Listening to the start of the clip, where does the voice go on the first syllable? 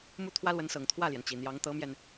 falling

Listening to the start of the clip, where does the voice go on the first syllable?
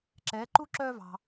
rising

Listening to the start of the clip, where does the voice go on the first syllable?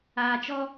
low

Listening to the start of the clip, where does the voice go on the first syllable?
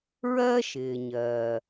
high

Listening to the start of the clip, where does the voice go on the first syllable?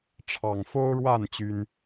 low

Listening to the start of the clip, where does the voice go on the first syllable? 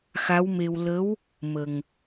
rising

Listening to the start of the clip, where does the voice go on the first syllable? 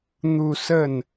falling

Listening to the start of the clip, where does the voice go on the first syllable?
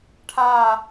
falling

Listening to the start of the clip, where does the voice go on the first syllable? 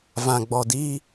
low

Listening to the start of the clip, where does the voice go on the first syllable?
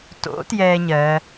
rising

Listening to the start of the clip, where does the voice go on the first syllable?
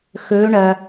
rising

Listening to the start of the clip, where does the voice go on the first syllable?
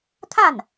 falling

